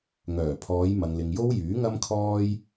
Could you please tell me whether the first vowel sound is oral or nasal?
oral